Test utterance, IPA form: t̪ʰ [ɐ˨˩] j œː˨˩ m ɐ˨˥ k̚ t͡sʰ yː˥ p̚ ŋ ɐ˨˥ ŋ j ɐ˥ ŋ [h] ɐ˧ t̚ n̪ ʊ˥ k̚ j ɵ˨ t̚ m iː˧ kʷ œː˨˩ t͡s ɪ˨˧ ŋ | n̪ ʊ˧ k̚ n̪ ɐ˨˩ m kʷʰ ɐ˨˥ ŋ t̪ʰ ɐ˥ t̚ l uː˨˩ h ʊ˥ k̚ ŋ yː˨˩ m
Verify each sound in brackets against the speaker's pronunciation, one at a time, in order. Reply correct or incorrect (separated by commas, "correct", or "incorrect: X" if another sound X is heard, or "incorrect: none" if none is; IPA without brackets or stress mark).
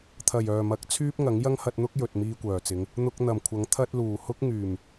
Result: correct, correct